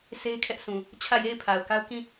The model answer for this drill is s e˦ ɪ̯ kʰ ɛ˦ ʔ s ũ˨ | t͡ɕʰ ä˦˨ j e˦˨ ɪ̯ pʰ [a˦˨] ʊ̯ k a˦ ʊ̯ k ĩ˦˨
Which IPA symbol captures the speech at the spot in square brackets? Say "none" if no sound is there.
a˨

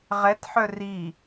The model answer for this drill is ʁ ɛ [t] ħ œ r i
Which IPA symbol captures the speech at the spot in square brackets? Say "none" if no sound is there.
t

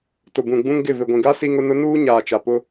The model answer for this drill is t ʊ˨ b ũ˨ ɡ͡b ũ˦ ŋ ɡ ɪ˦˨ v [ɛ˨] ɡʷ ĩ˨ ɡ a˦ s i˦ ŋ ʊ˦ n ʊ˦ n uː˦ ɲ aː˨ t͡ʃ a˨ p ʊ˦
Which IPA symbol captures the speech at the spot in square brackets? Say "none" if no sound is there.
ɪ˨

